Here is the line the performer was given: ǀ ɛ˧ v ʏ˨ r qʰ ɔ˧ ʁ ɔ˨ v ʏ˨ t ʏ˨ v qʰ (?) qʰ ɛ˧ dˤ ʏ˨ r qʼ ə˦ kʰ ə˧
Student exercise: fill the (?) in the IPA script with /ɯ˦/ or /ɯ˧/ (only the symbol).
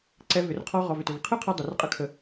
ɯ˦